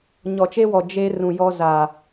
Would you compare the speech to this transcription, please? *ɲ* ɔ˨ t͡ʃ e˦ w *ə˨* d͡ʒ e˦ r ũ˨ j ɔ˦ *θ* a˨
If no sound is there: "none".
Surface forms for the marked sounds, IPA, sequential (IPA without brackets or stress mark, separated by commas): ɲ, ɔ˨, z